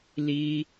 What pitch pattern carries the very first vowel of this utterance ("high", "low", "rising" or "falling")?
high